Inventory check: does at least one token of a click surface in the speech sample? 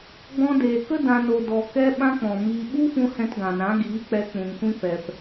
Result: no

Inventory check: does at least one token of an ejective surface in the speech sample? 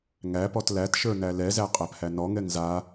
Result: yes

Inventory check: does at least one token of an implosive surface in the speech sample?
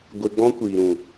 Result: no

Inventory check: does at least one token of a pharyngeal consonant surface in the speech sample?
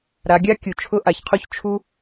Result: no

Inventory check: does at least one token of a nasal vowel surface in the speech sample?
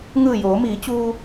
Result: no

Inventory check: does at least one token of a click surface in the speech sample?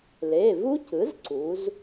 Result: yes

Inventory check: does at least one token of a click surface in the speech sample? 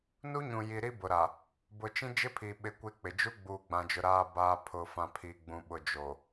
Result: no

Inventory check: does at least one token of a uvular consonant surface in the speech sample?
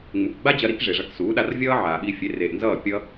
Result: no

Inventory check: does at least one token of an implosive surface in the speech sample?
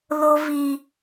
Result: no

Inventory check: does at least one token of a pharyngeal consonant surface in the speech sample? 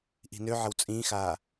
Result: yes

